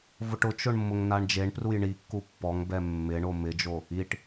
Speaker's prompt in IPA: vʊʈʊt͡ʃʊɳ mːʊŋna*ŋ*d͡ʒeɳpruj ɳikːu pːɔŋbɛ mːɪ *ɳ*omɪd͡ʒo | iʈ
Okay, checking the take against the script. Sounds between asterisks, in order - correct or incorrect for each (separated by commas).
incorrect, correct